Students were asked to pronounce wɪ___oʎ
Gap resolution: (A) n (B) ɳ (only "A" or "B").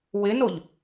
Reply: A